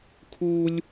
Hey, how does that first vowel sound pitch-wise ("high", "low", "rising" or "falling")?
high